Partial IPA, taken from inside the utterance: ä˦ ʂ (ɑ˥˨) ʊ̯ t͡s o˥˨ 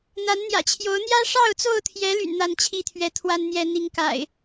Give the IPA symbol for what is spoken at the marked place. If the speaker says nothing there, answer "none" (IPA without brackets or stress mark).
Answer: ɑ˥˨